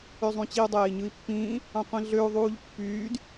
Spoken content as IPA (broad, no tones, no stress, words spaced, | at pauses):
øzˤũt͡ɕiu̯ dˤeːi̯ɲɯi̯pːĩː | ɑ̃qʷĩɮøu̯ ðˤuːʎpːyːd